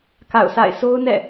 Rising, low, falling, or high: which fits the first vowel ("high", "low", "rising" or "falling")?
falling